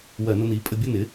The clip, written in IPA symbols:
w ɜ˧˩˧ n ʊ˧ n i˩˥ pʼ ə˧ bʲ ʊ˥˧ n ɪ˩˥

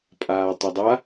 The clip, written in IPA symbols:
pʼ aː tˤ ɘ dˤ a

